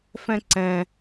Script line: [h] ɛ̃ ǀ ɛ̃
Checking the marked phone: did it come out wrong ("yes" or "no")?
yes